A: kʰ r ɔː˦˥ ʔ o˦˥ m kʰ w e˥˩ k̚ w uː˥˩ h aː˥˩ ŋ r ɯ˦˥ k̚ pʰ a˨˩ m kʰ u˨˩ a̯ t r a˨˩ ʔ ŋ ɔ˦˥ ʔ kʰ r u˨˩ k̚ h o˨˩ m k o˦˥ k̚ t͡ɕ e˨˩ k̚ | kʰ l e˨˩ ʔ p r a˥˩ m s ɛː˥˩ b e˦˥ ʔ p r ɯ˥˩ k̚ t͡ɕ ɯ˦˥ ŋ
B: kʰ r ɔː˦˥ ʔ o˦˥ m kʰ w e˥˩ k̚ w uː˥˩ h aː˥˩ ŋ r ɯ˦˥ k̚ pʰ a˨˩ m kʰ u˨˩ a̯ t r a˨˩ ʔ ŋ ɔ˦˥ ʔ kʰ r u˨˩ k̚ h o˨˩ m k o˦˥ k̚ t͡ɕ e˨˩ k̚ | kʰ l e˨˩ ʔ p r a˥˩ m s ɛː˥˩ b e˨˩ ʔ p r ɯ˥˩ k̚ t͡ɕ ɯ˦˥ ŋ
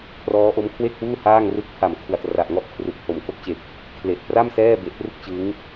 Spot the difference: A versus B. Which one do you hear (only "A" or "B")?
B